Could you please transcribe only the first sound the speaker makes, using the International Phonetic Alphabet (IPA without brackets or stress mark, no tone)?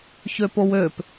ç